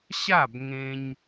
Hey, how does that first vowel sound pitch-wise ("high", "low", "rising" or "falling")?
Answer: falling